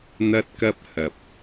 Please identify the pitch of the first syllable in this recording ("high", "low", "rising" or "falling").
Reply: high